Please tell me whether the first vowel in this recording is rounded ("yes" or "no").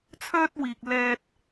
yes